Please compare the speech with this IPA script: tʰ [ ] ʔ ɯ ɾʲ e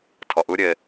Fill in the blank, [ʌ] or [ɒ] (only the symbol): ʌ